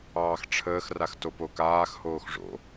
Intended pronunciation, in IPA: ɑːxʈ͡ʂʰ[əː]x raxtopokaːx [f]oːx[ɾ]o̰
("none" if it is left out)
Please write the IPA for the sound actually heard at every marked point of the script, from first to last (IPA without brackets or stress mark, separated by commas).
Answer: əː, h, ʐ